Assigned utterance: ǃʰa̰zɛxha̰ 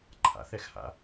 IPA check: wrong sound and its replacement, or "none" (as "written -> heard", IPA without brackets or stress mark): z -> θ